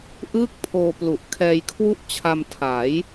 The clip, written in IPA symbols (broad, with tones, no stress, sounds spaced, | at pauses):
ʔ ɯː˥˩ k̚ pʰ oː˧ p l u˨˩ ʔ kʰ ɛː˧ j kʰ w u˥˩ ʔ t͡ɕʰ a˧ m tʰ a˩˦ j